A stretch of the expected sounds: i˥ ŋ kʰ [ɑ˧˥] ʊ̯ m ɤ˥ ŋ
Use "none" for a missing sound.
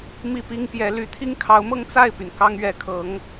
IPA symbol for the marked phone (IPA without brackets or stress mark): ɑ˧˥